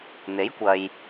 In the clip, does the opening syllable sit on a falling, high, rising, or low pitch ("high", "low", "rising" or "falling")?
rising